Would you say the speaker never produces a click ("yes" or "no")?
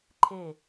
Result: no